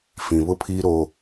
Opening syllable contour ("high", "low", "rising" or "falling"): low